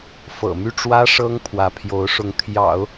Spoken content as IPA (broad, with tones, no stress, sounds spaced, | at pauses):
f ɤ̰˨˩ m y˥˩ ʈ͡ʂ w ä˥ ʂ ɤ˥ ŋ pʰ w ä˧˥ pʰ j o˧˥ ʊ̯ ʂ ʊ˧˥ ŋ t̪ʰ j ɑ̰˨˩˦ ʊ̯